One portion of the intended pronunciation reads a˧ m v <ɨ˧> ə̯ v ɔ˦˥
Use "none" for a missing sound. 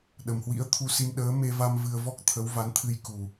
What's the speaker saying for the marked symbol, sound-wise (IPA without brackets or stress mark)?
ɨ˧